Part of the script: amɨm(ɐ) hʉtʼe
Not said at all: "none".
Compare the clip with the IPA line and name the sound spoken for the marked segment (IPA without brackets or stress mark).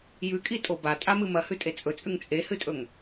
ɐ